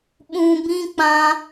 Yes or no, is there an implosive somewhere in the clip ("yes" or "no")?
yes